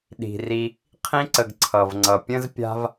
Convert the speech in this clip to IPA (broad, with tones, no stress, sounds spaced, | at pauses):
ɗ i̤˩ r i˨ | qʰ ĩ˥ ǀ ə˨ ɡ ǀʰ ʌ˩ v ŋ͡ǀ ʌ˩ pʲ ə̃˥ z pʲ a̤˥ v